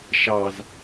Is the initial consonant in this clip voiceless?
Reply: yes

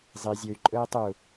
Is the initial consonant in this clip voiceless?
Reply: no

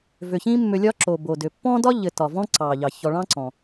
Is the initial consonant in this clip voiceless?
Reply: no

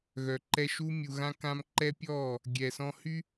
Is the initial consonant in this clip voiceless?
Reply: no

